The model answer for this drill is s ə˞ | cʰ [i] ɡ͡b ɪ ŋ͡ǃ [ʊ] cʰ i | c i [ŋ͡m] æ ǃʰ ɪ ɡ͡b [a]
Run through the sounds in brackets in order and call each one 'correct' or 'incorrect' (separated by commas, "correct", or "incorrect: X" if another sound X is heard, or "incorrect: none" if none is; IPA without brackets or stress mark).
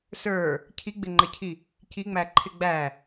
correct, incorrect: ə, correct, incorrect: æ